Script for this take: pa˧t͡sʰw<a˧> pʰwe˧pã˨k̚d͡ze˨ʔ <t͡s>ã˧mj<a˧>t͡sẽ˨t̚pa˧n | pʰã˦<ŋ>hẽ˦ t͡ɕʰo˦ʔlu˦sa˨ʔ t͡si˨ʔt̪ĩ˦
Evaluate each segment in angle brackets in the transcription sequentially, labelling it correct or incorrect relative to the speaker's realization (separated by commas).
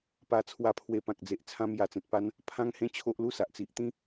correct, incorrect, incorrect, correct